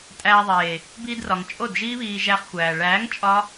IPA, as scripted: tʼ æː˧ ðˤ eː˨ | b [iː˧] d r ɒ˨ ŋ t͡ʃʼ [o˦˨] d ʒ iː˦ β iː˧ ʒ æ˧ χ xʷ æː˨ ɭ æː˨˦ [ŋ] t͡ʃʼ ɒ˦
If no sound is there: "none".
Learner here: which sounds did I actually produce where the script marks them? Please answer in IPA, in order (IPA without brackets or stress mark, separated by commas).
iː˧, o˦˨, ŋ